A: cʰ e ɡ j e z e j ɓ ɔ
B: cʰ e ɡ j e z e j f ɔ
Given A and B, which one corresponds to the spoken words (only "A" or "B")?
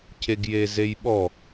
A